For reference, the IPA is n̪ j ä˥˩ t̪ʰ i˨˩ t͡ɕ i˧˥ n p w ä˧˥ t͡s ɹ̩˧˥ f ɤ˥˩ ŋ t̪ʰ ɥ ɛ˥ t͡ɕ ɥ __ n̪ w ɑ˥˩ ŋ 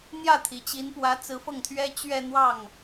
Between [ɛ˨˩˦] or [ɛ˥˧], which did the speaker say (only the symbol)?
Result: ɛ˥˧